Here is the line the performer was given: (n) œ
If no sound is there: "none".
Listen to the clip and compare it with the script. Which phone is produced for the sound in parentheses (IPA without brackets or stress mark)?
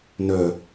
n